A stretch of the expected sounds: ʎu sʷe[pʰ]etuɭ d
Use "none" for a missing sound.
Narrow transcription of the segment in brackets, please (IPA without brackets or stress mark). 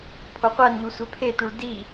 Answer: pʰ